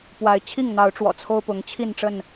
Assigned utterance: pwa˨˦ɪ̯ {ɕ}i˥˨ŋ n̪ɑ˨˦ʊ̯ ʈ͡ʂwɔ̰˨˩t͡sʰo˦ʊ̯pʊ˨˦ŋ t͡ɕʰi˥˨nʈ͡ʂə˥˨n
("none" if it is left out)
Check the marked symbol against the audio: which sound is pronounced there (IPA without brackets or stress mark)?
t͡ɕʰ